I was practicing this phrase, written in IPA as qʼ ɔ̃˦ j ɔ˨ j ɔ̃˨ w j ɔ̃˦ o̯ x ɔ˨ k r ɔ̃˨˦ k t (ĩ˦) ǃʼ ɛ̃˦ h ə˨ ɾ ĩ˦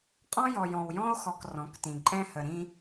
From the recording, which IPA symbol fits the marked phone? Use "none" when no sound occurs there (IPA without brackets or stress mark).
ĩ˨